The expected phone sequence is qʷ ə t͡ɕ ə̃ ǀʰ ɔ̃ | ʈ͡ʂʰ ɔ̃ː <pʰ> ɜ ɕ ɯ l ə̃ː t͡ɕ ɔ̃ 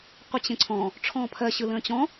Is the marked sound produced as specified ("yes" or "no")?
yes